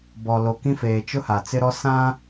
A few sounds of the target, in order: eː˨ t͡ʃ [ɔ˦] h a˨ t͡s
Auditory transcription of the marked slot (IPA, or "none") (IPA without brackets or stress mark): ʊ˦